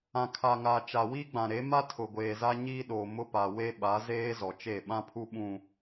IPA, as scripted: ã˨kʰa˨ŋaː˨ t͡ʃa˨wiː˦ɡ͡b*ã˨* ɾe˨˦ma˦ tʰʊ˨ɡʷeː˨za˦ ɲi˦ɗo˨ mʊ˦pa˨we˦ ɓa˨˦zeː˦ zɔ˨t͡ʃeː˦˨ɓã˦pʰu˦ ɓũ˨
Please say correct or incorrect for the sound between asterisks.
correct